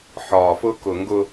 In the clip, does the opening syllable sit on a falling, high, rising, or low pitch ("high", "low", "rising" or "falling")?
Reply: low